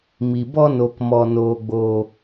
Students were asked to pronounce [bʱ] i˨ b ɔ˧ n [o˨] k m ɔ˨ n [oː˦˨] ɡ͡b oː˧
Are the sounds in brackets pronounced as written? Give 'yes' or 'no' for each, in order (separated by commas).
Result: no, yes, no